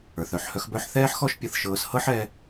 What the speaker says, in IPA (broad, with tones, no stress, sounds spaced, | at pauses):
ə˞˨ θ œ˨ ħ h œ˦ x b œ˦ ħ θ ɛː˦ ħ x ɔ˦ ʃ pʲ ɤ˧ θ ʃ ɤː˧ s h ɤ˦ ħ ɛ˧